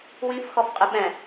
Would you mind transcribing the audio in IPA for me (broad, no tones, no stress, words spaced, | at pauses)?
wĩfxɔfqʼɪ ɓɛ̃